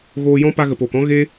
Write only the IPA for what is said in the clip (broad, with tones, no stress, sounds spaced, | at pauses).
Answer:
ɣ oː˧ j ɔ̃˦ p a˧ ɣ ə˨ p oː˨ k ɔ̃˦ ɣ e˦